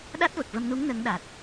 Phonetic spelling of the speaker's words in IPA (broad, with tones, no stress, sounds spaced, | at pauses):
ɗ a˦˥ t̚ v ə˨˩ k̚ v ə˧ m n u˧˥ ŋ n ə˧˥ ŋ ɗ a˨˩ t̚